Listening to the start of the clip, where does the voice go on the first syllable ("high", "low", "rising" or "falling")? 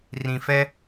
low